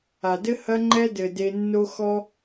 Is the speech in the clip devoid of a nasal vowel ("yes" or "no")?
yes